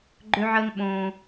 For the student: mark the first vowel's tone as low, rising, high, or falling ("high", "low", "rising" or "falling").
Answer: high